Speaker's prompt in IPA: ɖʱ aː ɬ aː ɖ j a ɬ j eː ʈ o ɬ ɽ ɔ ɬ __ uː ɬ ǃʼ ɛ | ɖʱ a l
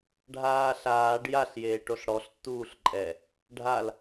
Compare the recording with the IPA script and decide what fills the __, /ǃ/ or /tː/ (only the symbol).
tː